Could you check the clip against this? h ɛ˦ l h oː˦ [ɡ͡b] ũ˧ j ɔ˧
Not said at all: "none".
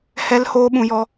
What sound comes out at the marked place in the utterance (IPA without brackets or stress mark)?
ɓ